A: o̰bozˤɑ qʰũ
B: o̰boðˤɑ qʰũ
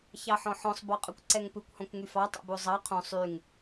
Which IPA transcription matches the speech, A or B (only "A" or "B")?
A